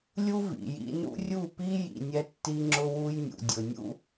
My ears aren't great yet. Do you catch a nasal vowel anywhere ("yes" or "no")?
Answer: no